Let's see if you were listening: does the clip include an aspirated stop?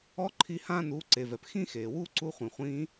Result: yes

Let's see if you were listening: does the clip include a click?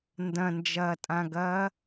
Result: no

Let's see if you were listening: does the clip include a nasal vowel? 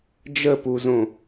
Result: yes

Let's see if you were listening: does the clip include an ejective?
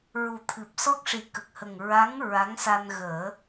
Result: no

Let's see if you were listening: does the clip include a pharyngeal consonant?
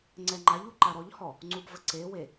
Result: no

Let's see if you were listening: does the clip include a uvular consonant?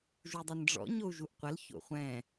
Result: yes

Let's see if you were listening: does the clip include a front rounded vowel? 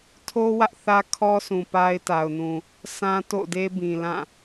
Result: no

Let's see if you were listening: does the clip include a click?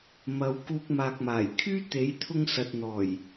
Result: no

